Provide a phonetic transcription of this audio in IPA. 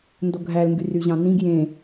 n d o ɡʱ æ l ŋ ɡ y r y ʑ ɑ̃ n ĩ ɡ j ẽ

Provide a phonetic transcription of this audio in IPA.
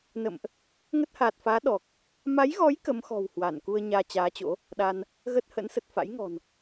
n ə̰˧˨ m ʔ | ŋ ə˦˥ t̚ h aː˨˩ t̚ f aː˨˦ ɗ ɔ˨˩ k̚ | m a˨˦ j ɣ ɔ˨˦ j k ə˨˦ m x ɔ̤˨˩ w h w a˧˩ n k u˧ ə̯ ɲ aː˧ t͡ɕ aː˨˦ t͡ɕ o̰˧˥ | ɗ a˧ n | ɣ ə˦˥ t̚ h ə̰˧˥ n s ə˨˩ t̚ f a̰˧˥ j ŋ ɔ̤˨˩ n

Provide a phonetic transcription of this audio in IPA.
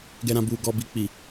ɡ ɛ˨ ɾ ã˨ b uː˨ ɡ ɔ˨ b i˨ k͡p i˨

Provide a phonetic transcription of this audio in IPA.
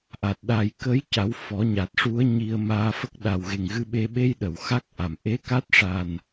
ʔ a˨˩ t̚ ɗ a˨˩ j k ə˧˥ j c a˨˩˦ w f ɔ˨˩˦ ɲ a˨˩ t̚ ʂ u˧˥ ə̯ ɲ i˧ ə̯ m aː˧ f ə˦˥ k̚ ɗ a˨˩ w ɣ e˨˩ ŋ ɣ ɨ˧ ɓ e˧ ɓ e˧ j ɗ ə˨˩˨ w x a˦˥ k̚ ʔ a˨˩ m ʔ e˧˥ k a˦˥ t̚ ʂ a˨˩ n

